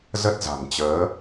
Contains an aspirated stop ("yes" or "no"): no